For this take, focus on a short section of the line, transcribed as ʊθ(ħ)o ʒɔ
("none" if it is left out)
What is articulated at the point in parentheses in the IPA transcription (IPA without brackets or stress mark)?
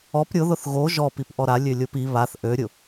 ɣ